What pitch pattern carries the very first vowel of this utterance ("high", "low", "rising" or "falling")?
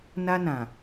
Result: high